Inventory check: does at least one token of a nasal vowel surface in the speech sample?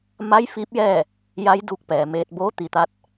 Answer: no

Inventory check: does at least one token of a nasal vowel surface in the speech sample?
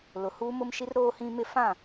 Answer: yes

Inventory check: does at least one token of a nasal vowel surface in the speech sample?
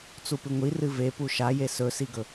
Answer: no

